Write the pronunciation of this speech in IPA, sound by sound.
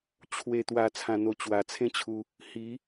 t͡ɕʰ w e˨˩ t̪ w a˨˩ t͡sʰ ã˨˩ n̪ o˨˩ t͡ɕ w a˨˩ t͡sʰ ẽ˥˧ t͡ɕʰ u˧ | h i˨˦

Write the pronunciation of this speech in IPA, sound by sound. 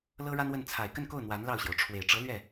l ɤ˥ ɻ a˥ n w ə˥˩ n t͡sʰ a˨˩ ɪ̯ k ə˥˧ n k o˥˩ ʊ̯ n̪ w a˧˥ n l ɑ˥˩ ʊ̯ ɕ j o˩ ʊ̯ ʈ͡ʂʰ w e˨˩ ɪ̯ ʈ͡ʂ ɤ˧˥ l ɥ ɛ˥˩

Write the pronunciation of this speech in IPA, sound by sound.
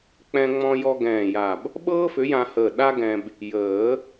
k͡p ɛ̃˧ ŋ͡m ɔ̃˧ j ɔ˧ ɡ ɛ̃ː˧˩ j a˧˩ b | ɓ ɤː˥ f ʏ˨˥ j ã˧ h əː˧˩ ɗ a˥ ɡ ɛ̃˧ b | j əː˨˩˦

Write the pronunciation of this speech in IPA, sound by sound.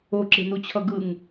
o ǁ e̤ n u t͡ɕʰ ʌ ɡ ɯ ŋ

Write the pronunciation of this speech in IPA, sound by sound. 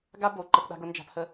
ɡ a˦ b o˨ ǃ ə˦ p ɗ a̤˦ ɡ ʊ˦ n d͡ʒ a̤˦ p h ə˦

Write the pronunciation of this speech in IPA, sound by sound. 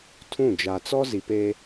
tʰ ũ˦˨ d͡ʒ a˨ t͡s ɔ˦ z i˨ p e˦

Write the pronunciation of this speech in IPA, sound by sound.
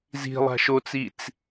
z i̤ lˠ a̤ ʃ o t͡s i t͡s

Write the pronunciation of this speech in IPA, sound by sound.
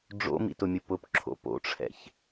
ɖ͡ʐ o̰ m ḭ t ʊ mʲ ʊ p ʊ p ǁʰ o̰ p o̰ ʈ͡ʂʰ ɛ̰ ç

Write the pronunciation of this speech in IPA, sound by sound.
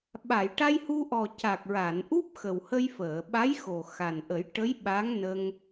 ɓ a˨˩˨ j ʈ a˧ j h u˧ ʔ ɔ˨˩ c a˨˩ k̚ ɹ a˨˩˨ n ʔ u˦˥ p̚ x ə˨˩ w h ə˧ j f əː˨˩˨ ɓ a˧˥ j x o˨˩ x a˨˩ n ʔ ə˨˩˦ j ʈ ə˧˥ j ɓ a˧˥ ŋ n ə˧ ŋ

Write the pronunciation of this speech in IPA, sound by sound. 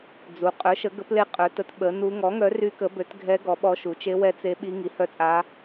d͡z u˩˥ qʼ œ˩˥ ʃ ə˩˥ ɡ ə˩˥ p l e˧˥ qʼ œ˩˥ t ə˩˥ t ɓ ə˩˥ n u˧˥ ŋ ɔ˩˥ ŋ œ˩˥ r y˧˥ k ə˩˥ b ø˩˥ t ɡʱ ɛ˧˥ ɡ ɔ˩˥ ɓ ɔ˧˥ ʃ u˩˥ t͡ʃ e˧˥ w ɛ˧˥ t͡s e˧˥ ɓ i˧˥ ŋ i˩˥ h œ˧˥ t͡sʼ a˧˥

